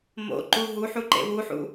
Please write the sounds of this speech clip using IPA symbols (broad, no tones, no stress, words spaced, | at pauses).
mo̰ǃu ɦuħu ǃḛwuħṵ